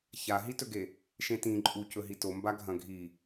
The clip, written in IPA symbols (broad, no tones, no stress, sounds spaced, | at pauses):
ç a ɦ i t ɵ ɡ e | ʃ ẽ t ĩ ǃʼ u c ɵ ɦ i t o m b a ɡʱ ɐ̃ ɡʱ i